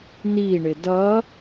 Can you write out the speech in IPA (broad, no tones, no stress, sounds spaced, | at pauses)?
n i ɳ ɪ d ʌ